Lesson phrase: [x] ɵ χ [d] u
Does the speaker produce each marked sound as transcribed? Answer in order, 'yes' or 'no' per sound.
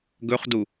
no, yes

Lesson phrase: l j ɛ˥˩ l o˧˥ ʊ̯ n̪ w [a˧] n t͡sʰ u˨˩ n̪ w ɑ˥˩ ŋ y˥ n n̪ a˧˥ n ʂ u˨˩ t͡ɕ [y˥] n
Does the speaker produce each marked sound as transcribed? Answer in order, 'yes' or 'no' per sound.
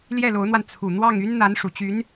yes, no

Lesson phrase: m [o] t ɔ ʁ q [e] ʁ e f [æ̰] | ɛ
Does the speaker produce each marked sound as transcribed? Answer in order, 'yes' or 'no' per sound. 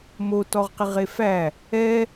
yes, no, no

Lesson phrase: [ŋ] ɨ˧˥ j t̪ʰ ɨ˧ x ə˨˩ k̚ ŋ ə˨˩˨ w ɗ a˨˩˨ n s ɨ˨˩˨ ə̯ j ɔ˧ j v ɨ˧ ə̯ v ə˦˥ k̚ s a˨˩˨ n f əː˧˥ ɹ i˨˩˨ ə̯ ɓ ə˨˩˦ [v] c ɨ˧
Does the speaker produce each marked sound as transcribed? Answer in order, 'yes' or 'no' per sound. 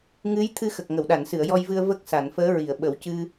yes, no

